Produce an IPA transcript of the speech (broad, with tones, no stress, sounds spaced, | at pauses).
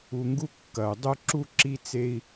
u˨ ŋ ɡ u˦ kː ɐ˩ u̯ dˤ u˦ ǁ u˦ ǁ i˥ t͡s e˥ i̯